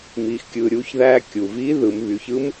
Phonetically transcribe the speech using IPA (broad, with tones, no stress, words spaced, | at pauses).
miː˩xkʲɯː˩ɾʲuː˩˧çðæː˧ kʲu˩ viː˧˥ ðɯ˩˧m βy˩˧çɯ˥m